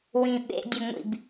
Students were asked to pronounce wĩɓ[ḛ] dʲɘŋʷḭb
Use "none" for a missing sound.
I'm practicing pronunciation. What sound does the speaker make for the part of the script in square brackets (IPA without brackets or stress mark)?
ḛ